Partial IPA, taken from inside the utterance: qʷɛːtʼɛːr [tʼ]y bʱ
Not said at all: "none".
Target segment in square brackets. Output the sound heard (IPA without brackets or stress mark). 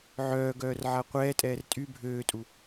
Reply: tʼ